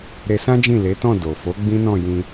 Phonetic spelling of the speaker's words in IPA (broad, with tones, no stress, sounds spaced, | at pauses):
ɾ e˧ s ã˦ d͡ʒ ĩ˦˨ l e˨˦ t ɔ̃˦˨ d o˨ f o˨˦ ɡ͡b ĩ˦ n ɔ̃˦˨ j ĩ˧